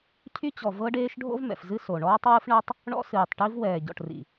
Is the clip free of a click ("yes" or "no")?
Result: yes